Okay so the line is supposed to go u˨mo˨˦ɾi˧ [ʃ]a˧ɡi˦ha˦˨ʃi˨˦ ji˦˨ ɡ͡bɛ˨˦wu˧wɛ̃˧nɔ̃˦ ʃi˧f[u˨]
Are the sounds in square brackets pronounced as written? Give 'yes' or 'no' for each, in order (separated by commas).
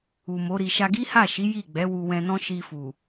yes, yes